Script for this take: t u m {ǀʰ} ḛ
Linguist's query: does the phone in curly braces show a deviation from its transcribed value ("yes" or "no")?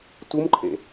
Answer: yes